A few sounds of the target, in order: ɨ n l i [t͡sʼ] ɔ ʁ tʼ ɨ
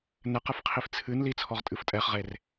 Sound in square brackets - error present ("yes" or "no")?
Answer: yes